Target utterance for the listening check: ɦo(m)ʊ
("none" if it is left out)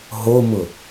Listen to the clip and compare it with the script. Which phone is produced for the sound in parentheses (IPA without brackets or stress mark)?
m